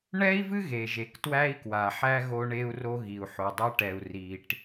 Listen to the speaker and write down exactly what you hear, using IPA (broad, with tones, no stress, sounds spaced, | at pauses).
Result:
ɳ ɛ˦ i̯ v ɨ˦ ɣ e˨ ʒ e˨ k t w æ˦ i̯ k w a˨ ħ æ˦ ɣ o˦ ɳ e˦ u̯ r o˦ ɣ i˨ u̯ ħ o˨ dˤ æ˦ ʈ ɛ˨ u̯ r i˨ ʈ